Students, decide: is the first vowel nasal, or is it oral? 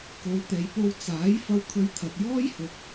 oral